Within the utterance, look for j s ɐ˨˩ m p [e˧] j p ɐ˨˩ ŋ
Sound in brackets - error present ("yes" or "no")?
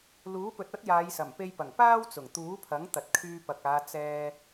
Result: no